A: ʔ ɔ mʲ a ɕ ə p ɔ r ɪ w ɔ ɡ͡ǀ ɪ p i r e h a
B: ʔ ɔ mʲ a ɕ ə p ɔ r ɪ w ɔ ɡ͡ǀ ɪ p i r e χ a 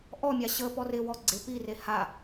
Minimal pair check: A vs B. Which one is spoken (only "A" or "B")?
A